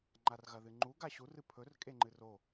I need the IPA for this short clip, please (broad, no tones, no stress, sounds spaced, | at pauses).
ŋ͡ǃ a r ɣ ɐ ð ɨ ŋ͡ǃ u ɡ a ɕ u r ɨ pʰ ɵ r kʼ e ŋ͡ǃ ɨ r o